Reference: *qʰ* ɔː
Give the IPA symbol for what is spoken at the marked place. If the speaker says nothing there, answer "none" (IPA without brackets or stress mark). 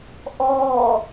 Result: ʔ